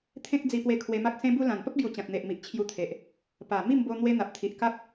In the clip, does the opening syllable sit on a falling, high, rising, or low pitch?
high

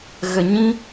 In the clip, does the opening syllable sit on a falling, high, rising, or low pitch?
low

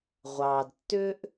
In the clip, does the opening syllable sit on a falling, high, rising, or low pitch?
low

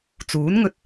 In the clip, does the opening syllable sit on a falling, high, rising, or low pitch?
rising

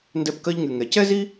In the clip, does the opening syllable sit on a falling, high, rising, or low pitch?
high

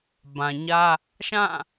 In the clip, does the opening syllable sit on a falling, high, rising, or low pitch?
low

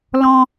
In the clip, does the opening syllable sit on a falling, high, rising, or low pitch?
high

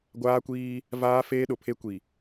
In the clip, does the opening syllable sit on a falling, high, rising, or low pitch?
high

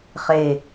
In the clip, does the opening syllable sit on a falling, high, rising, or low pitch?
low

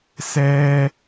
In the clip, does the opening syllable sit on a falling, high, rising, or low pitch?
high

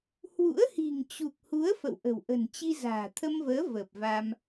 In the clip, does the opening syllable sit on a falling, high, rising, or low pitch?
rising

